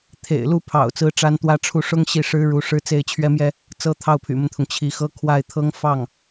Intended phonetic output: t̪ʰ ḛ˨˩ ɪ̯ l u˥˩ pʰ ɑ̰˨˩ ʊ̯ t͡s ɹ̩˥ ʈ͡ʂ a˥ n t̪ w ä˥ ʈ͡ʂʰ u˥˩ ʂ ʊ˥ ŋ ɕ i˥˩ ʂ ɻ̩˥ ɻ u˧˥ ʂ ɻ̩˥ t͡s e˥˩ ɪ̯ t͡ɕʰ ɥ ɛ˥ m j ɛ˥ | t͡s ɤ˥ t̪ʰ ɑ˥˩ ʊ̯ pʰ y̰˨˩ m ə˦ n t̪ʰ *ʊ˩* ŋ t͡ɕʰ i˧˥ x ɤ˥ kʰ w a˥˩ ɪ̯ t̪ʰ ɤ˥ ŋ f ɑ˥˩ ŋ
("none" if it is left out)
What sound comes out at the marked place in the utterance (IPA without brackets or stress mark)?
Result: ʊ˩